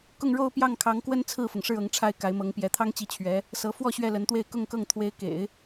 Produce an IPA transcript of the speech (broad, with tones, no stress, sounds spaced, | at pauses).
k ʊ˥˧ ŋ ɻ o˥˧ ʊ̯ p j ɑ˥˩ ŋ kʰ ɑ˧˥ ŋ k w ə˥ n t͡sʰ ɹ̩˥˩ f ʊ˩ ŋ ʂ ɻ̩˥˩ ɤ˧˥ ŋ ʈ͡ʂʰ a˥˩ ɪ̯ k a˧˥ ɪ̯ m ɤ˧˥ ŋ p j ɛ˧˥ t̪ʰ ɑ˥ ŋ t͡ɕ i˧˥ t͡ɕʰ ɥ ɛ˧˥ | s ɤ˧˥ f w ɔ˥˧ ɕ ɥ ɛ˥˩ l ə˧˥ n t̪ w e˥˧ ɪ̯ k ʊ˥˧ ŋ k ɤ˥˩ ŋ t̪ʰ w e˧˥ ɪ̯ k ḛ˨˩˦ ɪ̯